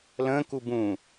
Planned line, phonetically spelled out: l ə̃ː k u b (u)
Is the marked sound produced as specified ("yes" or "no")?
no